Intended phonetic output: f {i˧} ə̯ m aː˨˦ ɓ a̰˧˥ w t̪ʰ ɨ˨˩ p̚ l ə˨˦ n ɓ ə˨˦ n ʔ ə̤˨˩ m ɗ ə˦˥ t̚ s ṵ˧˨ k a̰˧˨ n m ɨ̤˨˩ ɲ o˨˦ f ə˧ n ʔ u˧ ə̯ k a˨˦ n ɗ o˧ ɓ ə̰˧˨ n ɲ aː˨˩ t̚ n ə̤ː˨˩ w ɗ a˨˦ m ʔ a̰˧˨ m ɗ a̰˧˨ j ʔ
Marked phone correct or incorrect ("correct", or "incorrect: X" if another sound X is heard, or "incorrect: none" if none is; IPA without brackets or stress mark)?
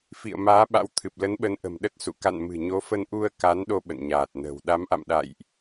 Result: incorrect: ḭ˧˨